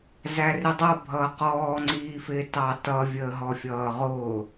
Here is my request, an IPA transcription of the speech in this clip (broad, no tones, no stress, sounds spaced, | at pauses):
z æ r ɪ dˤ ʌ bʱ ʌː q ɔː ŋ͡ǀ iː f ɪ t ɑ t ʌ vʲ əː ɦ ɔ fʲ ʌː ʁ ʊː